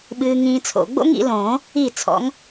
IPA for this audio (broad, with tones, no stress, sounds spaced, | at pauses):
ɓ ɨː˦˥ ŋ ĩː˦˥ t͡sʰ o̰˨˩˦ ɡ͡b o̰˦˥ ŋ ḭ˨˩˦ l õː˨˩˦ | i˥˩ t͡sʰ ɔ̰˨˥ ŋ